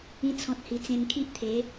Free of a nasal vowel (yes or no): no